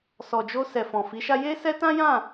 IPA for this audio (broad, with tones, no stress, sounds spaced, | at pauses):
s ɔ˨ d͡ʒ o˧ s ɛ˨ f ɔ̃˨ f i˨˦ ʃ a˦ j e˦ s ɛ˦ t ã˦ j ã˦˨